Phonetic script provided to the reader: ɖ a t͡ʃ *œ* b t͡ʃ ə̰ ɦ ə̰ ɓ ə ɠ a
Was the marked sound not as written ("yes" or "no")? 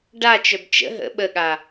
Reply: no